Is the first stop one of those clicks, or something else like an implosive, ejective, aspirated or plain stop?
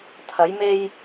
aspirated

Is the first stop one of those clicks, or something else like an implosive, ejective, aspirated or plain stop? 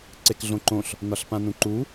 click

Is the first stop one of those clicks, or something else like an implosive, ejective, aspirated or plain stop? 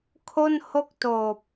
aspirated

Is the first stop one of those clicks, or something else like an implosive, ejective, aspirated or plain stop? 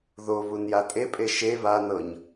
ejective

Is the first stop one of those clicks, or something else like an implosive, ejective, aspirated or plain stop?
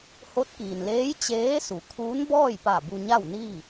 plain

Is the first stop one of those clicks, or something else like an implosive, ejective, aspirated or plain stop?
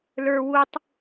plain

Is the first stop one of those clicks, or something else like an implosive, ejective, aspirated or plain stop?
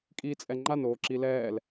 ejective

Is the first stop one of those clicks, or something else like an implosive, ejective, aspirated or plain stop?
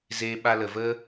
implosive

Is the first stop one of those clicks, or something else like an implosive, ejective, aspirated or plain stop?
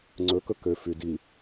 click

